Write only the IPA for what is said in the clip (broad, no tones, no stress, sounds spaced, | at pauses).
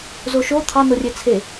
z o ʃ o t̪ʰ ɑ n o rʲ e t͡sʰ e